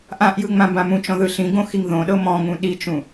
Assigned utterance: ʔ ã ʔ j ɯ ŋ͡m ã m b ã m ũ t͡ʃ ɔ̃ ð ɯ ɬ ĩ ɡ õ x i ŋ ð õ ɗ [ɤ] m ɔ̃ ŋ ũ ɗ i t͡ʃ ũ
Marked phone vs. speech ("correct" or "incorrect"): correct